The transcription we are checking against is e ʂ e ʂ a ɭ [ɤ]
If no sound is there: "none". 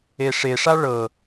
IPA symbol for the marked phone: ɤ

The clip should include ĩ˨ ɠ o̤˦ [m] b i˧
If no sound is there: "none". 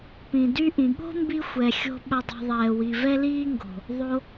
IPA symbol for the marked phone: m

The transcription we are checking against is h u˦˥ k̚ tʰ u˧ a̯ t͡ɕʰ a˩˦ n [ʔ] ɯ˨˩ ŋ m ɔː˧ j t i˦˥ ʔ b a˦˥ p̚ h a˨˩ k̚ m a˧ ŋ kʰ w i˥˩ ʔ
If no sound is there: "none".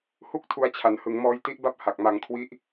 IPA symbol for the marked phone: h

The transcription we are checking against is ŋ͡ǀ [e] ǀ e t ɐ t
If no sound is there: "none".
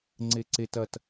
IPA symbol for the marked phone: e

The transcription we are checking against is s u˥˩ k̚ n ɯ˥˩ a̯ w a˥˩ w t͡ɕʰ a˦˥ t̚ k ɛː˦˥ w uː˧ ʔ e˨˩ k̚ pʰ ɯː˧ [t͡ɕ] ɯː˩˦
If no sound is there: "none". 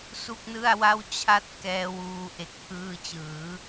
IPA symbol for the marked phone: t͡ɕ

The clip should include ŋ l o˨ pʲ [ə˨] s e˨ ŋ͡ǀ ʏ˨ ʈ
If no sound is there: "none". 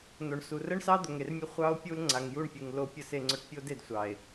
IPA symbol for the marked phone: ə˨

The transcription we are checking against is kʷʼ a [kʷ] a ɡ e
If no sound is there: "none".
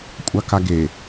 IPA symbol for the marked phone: k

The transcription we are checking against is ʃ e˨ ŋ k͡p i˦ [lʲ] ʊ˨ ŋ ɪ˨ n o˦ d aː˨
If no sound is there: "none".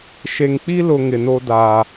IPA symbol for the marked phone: l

